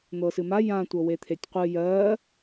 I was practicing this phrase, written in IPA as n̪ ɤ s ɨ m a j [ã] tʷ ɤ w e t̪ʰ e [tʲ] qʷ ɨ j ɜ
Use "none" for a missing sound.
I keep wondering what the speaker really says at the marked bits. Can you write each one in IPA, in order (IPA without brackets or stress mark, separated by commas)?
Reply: ã, tʲ